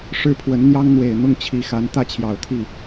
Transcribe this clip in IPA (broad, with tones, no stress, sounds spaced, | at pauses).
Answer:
ʂ ɻ̩˥˩ pʰ w ə˧˥ n n̪ j ɑ˥ ŋ n̪ w e˨˩ ɪ̯ n̪ ʊ˥˩ ŋ t͡ɕʰ i˧˥ x a˧˥ n t̪ ä˥˩ t͡ɕʰ j ɑ˨˩ ʊ̯ t̪ʰ i˥˩